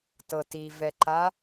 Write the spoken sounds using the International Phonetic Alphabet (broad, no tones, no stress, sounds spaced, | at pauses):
t ɤ t i v ɛ ǃ a